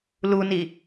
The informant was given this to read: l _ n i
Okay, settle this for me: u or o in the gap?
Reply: u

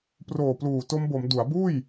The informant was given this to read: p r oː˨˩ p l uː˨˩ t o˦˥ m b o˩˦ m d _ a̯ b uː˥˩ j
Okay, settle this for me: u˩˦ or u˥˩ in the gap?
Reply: u˩˦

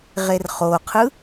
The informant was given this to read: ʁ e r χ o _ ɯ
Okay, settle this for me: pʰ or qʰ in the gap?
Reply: qʰ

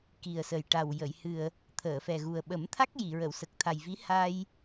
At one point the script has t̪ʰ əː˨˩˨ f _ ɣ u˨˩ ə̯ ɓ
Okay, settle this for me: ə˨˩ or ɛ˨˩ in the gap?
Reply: ɛ˨˩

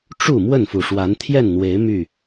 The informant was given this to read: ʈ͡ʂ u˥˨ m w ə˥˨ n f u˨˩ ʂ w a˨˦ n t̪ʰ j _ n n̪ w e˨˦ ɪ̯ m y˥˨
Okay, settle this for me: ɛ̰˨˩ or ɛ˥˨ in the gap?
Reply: ɛ˥˨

